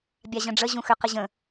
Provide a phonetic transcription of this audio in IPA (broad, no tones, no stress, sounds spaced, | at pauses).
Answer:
bʲ a ʑ ə̃ ɖ͡ʐ ə ʑ ũ x ʏ q ə ʑ ə̃